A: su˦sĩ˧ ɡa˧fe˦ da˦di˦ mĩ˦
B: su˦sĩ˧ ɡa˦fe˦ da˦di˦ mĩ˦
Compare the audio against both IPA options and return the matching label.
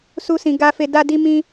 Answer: B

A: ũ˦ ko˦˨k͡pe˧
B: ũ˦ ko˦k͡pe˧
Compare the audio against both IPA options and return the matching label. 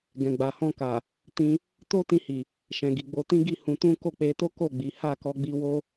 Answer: A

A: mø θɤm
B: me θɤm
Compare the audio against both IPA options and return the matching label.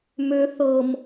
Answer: A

